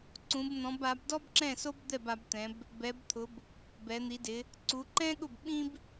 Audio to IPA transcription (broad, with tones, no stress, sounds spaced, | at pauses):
ǀ ũ˩˧ b n̪ ɔ̃˩˧ b a˩˧ b d ɔ˥ b ǁ ɛ̃˥˩ s o˥ b d̪ ɛ˥˩ b a˩˧ b t̪ ɛ̃˩˧ b | b ɛ˩˧ b t̪ʰ ʊ˩˧ b | b ɛ˩˧ n̪ i˩˧ d ɪ˩˧ | ǀ u˩˧ ǃ ɛ̃˥ ɠ ʊ˥˩ b ɓ ĩ˥ b